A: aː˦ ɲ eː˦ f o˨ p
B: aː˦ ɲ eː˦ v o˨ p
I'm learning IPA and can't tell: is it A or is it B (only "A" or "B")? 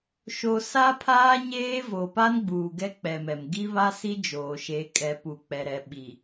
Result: B